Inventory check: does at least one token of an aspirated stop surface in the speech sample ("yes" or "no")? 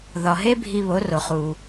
no